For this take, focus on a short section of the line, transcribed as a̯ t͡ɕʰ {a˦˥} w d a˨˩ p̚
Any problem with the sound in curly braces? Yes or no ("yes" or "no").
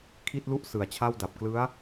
yes